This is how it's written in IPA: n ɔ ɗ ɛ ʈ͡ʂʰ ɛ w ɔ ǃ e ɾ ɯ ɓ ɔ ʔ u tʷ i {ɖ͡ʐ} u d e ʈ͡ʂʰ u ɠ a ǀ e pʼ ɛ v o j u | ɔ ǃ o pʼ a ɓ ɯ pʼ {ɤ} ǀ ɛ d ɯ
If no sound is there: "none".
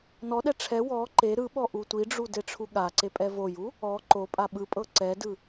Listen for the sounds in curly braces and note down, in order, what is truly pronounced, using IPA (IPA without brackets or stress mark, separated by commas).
ɖ͡ʐ, ɤ